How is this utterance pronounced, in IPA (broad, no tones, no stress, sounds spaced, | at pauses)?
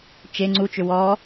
t͡ʃ e ŋ͡ǀ u t͡ʃ ʏ w ɔ